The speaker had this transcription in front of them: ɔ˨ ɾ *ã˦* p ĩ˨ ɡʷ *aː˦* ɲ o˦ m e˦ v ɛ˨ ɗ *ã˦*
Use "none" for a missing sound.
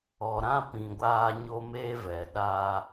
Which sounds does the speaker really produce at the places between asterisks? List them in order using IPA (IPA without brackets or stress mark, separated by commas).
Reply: ã˦, aː˦, a˦